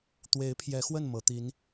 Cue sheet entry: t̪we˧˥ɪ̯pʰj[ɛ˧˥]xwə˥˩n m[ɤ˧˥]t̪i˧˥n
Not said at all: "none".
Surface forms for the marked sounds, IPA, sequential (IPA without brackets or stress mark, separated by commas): ɛ˧˥, ɤ˧˥